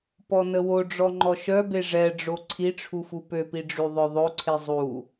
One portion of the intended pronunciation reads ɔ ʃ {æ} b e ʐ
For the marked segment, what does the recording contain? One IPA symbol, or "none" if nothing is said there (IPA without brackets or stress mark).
œ